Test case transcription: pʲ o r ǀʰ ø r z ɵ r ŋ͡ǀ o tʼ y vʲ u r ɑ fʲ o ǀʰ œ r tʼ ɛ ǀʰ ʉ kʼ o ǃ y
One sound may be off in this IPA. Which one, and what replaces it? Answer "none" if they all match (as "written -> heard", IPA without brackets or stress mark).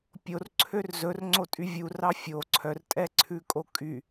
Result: ǃ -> kʼ